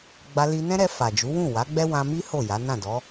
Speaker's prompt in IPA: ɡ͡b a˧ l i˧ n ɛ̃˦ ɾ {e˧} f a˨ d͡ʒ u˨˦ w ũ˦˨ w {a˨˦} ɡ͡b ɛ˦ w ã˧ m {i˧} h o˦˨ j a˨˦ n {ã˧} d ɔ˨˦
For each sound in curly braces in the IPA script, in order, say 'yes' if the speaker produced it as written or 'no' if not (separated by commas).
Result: no, yes, no, no